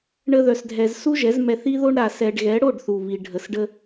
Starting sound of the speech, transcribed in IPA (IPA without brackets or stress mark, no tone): ɳ